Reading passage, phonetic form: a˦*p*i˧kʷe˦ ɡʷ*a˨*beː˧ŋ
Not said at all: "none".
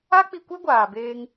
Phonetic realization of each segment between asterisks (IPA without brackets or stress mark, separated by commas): k͡p, aː˨